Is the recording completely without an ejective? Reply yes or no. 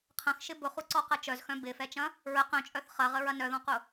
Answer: no